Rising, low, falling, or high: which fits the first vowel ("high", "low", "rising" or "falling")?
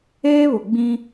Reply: high